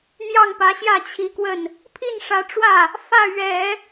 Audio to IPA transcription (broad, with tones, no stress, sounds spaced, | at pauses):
n̪ j ɑ˥˩ ŋ p ä˧˥ ɕ j ä˥˩ t͡ɕʰ i˧˥ k w ə˥˩ n | pʰ i˥˩ n ʂ ä˧˥ ʈ͡ʂ w ä˥˩ | f ä˥˩ ɥ ɛ˨˩˦